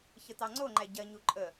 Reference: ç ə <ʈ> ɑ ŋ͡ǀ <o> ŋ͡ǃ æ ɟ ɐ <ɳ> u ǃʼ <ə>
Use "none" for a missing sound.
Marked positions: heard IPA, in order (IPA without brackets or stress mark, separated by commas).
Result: t, o, ɲ, ə